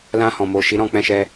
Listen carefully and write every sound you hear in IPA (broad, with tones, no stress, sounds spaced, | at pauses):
l ã˧ h ɔ̃˨ m o˨ ʃ i˨˦ ɾ ɔ̃˦˨ k͡p ɛ̃˧ ʃ ɛ˧